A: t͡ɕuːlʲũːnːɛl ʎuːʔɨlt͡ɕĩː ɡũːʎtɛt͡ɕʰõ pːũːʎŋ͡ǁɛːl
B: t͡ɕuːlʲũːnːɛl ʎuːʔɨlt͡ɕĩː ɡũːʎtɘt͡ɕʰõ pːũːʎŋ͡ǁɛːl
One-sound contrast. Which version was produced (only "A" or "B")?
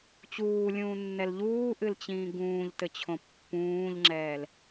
B